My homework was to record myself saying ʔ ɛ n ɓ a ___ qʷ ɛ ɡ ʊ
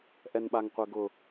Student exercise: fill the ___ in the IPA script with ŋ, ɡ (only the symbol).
ŋ